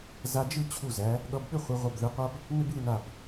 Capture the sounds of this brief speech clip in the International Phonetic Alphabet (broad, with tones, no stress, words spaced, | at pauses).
za˧d͡ʒɯ˥˧ t͡ɕʰu˧˩zæ˩˧ | ɠʌ˧bɓʏ˥˧ χʷɯ˩˧ʁʷʌ˧˩bðɯ˩˧qʷa˥b | nʏ˥bɯ˥˧na˧˩b